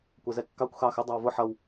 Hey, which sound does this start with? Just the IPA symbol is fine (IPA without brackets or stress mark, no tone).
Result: kʷ